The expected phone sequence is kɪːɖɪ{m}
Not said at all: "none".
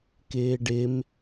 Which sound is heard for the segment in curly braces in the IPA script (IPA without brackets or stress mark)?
m